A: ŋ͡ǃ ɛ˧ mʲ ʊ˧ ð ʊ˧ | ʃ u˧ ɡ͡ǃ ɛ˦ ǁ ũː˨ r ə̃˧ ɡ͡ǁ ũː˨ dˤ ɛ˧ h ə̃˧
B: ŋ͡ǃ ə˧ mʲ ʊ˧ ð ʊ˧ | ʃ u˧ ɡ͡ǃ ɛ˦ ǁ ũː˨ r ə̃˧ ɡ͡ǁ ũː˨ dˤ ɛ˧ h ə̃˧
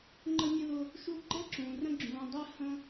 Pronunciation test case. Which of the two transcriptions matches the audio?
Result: B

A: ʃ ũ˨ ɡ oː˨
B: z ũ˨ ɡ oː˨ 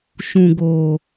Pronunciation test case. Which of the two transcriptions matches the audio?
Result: A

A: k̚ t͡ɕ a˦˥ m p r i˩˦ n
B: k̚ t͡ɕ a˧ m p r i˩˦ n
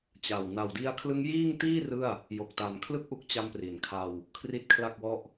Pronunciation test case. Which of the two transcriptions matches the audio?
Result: B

